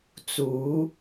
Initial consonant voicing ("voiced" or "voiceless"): voiceless